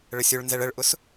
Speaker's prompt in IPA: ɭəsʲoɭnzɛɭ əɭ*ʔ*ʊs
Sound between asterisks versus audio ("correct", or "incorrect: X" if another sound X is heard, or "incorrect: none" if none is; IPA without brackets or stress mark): correct